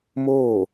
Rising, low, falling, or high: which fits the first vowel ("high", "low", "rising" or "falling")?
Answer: falling